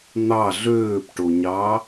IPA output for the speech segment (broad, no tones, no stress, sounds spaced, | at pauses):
n̪ ɑ ɮ øː p ʈ o ɲ ɑ